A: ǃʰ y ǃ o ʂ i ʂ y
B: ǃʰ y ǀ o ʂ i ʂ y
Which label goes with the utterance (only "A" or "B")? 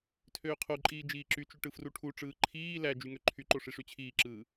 A